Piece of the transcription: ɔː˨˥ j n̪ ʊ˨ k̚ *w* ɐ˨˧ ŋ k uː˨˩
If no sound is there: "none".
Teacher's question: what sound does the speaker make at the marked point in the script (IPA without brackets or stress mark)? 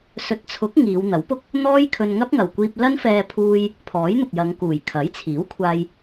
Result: j